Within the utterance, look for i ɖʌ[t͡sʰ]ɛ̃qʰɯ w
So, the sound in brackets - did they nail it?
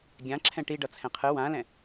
yes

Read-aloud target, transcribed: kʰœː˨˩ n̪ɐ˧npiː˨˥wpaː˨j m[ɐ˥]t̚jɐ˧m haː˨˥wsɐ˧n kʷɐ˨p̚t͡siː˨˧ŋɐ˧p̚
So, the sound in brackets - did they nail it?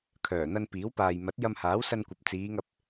no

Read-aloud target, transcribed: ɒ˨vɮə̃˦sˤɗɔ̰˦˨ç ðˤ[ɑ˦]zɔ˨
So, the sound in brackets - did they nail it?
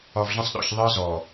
no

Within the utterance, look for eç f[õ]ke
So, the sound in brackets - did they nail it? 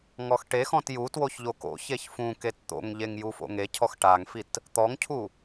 no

